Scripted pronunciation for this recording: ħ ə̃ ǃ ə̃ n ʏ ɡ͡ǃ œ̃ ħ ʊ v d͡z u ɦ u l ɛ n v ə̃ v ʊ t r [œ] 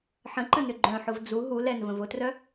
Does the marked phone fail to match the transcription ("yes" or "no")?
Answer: no